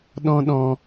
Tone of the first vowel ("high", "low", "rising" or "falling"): high